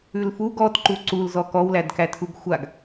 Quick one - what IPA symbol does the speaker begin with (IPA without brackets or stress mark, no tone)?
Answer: ʉ